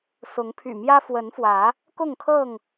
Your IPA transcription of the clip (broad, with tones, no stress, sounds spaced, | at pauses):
s ʊ˨˦ ŋ pʰ y̰˨˩ m j ä˦ f w ə˨˦ n f w ä˨˦ | k ʊ˥˨ ŋ kʰ ɤ˥˨ ŋ